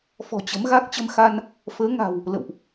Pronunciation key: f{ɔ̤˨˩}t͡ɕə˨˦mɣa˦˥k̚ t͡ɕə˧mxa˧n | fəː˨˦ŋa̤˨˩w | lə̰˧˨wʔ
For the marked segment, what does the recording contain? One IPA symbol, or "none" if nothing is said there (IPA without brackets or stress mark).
ɔ̤˨˩